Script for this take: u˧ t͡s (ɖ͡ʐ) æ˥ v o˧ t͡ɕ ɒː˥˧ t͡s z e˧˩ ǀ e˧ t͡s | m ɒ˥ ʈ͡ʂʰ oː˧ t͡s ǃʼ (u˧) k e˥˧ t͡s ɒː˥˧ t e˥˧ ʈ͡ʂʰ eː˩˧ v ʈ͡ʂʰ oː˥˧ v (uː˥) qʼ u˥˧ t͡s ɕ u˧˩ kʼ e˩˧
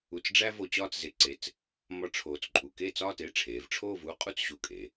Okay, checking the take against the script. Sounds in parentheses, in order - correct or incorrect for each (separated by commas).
correct, correct, correct